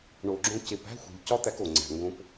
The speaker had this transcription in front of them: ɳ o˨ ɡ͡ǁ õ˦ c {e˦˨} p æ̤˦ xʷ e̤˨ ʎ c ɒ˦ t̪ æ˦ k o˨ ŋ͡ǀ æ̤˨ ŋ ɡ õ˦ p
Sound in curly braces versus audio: incorrect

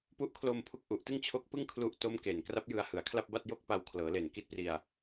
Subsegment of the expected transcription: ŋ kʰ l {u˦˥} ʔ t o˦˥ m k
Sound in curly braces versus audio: correct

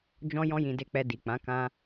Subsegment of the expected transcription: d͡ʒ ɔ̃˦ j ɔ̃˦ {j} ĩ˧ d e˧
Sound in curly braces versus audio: correct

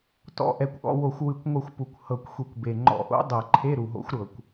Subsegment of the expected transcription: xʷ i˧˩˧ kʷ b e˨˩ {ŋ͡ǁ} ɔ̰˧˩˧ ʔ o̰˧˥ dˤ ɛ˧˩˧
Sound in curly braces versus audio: incorrect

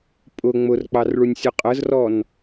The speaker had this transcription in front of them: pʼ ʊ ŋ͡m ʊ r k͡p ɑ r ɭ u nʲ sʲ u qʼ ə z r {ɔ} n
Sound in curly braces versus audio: correct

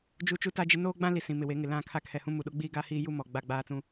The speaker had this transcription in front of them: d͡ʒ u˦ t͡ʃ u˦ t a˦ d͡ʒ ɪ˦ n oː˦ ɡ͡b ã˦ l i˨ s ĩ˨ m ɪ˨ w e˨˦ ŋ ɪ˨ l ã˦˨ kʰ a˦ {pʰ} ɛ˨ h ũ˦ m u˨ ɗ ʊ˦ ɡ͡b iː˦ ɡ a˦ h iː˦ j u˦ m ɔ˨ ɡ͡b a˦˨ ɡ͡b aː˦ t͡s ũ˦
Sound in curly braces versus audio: incorrect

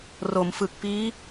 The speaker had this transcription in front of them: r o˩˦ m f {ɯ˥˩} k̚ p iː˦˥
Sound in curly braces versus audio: incorrect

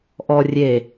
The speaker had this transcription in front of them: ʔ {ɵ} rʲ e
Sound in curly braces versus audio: incorrect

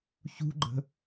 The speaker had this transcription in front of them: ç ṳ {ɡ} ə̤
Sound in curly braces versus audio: incorrect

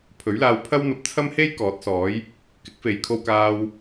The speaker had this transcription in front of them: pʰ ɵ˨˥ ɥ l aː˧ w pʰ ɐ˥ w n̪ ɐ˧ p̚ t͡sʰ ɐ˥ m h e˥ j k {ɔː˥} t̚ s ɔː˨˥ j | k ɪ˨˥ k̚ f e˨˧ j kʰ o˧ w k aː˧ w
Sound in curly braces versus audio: incorrect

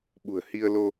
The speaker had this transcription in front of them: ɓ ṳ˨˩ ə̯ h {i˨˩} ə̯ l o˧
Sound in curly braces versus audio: incorrect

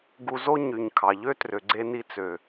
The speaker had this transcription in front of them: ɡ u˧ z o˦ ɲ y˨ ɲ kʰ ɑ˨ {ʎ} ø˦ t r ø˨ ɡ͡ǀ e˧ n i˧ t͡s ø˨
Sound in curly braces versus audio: correct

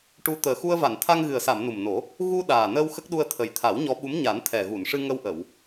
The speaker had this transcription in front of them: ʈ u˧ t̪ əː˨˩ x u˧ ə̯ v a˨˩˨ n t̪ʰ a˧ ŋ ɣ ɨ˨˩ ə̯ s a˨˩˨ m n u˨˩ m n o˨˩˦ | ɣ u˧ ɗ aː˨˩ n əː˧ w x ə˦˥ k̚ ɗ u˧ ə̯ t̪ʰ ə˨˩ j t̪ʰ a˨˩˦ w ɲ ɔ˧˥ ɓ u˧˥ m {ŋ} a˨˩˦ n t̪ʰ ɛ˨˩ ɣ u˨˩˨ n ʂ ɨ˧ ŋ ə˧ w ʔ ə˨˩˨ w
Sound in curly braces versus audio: incorrect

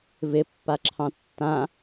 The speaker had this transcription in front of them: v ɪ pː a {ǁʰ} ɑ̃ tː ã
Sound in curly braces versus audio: correct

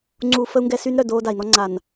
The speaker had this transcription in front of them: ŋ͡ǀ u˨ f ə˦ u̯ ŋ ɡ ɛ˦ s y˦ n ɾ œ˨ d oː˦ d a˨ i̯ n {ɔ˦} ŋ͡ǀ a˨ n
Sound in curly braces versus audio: correct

